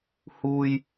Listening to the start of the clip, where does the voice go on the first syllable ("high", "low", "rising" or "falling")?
low